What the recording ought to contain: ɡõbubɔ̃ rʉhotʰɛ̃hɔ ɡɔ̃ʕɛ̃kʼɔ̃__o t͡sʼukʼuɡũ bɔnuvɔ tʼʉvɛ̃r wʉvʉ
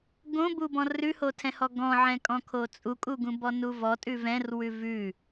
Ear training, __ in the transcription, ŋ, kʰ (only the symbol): kʰ